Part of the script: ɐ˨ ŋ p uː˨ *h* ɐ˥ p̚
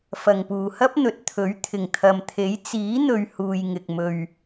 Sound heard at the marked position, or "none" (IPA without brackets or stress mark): h